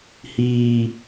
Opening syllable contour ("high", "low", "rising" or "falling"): low